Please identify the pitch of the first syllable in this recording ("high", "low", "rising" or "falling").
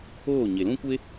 falling